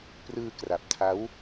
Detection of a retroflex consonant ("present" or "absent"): absent